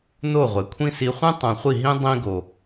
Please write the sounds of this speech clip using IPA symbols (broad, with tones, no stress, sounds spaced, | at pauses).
n o˦˨ ʁʷ e˨ kʷʰ ĩ˦ s i˧ χʷ ĩ˦ tˤ õ˨ χʷ i˦˨ ɦ ĩ˦ dˤ ĩ˦ ɡ o˨